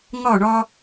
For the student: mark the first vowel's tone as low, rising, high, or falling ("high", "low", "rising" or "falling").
falling